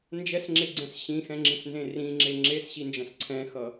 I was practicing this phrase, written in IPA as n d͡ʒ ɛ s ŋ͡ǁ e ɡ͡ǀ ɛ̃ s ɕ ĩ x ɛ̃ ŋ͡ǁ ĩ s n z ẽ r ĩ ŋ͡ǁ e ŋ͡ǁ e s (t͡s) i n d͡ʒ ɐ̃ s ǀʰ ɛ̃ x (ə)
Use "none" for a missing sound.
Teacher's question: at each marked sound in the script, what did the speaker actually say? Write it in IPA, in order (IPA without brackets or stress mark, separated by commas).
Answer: ɕ, ʌ